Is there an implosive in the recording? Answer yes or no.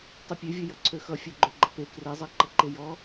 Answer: no